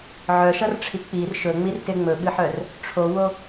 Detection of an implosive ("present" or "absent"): present